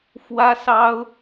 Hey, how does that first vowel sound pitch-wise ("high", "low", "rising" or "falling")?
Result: high